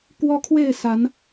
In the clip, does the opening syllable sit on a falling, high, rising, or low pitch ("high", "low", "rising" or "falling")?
high